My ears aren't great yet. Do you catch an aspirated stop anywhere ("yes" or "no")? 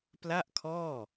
yes